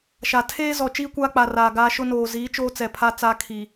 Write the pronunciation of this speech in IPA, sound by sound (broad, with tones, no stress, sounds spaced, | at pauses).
ʃ a˨ tʰ eː˦ z ɔ˨ t͡ʃ iː˦ kʷ aː˦ k͡p a˨ r aː˨ ɡ aː˦ ʃ ʊ˦ n oː˨ z iː˨˦ t͡ʃ oː˦ t͡s ɛ˨ pʰ a˦ t͡s aː˦ kʰ iː˨